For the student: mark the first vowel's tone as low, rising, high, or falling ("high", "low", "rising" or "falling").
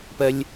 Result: low